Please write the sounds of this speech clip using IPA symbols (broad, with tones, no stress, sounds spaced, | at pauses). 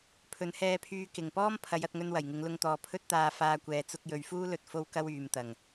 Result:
pʰ ɵ˨˧ n h ɛː˧ pʰ yː˧ k ɪ˨˩ ŋ p ɔː˥ m pʰ ɐ˨˧ j ɐ˨ t̚ ŋ ɵ˧ n w ɐ˨˩ j ŋ ɪ˨˧ ŋ l ʊ˧ ŋ t̪ ɔː˨ pʰ ɵ˥ t̚ t̪ aː˧ f aː˧ kʷ ɛː˨ t͡s ʊ˧ k̚ j ɵ˨ ɥ f uː˥ l ɵ˧ t̚ f o˥ w k ɐ˥ w yː˨ m t̪ ɐ˨˩ ŋ